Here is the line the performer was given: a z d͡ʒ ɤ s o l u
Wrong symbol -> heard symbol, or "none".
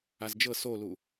none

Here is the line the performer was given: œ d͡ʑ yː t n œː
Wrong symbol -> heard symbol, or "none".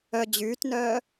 none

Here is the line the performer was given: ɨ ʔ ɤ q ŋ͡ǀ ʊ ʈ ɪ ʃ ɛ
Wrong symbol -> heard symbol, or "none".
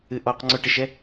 ɤ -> ɔ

